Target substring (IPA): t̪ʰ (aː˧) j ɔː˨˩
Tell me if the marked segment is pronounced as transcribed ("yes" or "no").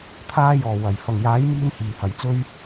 yes